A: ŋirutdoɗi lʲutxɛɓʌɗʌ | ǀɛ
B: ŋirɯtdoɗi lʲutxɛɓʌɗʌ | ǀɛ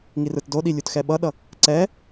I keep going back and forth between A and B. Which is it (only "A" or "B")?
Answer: B